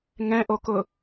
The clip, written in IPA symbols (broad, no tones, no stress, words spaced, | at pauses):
ŋɛ̃ʔokʊ